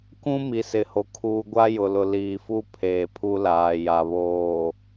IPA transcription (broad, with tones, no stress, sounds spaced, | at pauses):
k ũ˦ m i˨ s ɪ˨ h o˨ kʰ uː˨ ɡʷ a˦ j ʊ˨ l ʊ˨ l iː˨ f u˦ pʰ eː˨ pʰ u˦ l aː˨ j a˨ β oː˨